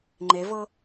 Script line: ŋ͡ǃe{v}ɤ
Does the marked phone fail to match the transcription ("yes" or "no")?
no